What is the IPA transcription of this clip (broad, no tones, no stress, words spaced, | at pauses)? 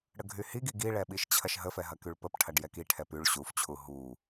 ɽəɡʱyhiɡiɡ iɭɛ ɓiʃt͡ɕʰɐʃɦəfɛ ɦɐkyɭpəpʈʰɐɖ jɛkiʈʰɛ pyɭ ɕuft͡ɕʰu ɦu